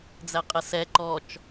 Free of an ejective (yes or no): no